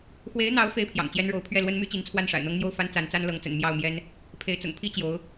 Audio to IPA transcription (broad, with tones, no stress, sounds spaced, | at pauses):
x w e˧˥ ɪ̯ n̪ ɑ˧˥ ʊ̯ f e˥ ɪ̯ pʰ j ɑ̰˨˩ ŋ t͡ɕ j ɛ˥ n ɻ o˧˥ ʊ̯ pʰ ɥ ɛ˥˩ l w ə˥ n m y˥ t͡ɕ i˧˥ n t͡sʰ w a˥˩ n ʂ a̰˨˩ ɪ̯ n̪ ɤ˥ ŋ n̪ j o˥˩ ʊ̯ f a˥ n t͡s a˧˥ n t͡s a˥ n l ɤ˧˥ ŋ t͡s ə̰˨˩ n m j ɑ˥˩ ʊ̯ m j ɛ˥ n | pʰ e˧˥ ɪ̯ t͡s ʊ̰˨˩ ŋ pʰ i˥ t͡ɕ j o˧˥ ʊ̯